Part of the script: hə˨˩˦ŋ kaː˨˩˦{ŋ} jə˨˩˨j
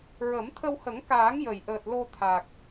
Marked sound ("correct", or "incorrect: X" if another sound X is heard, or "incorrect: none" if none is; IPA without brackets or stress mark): correct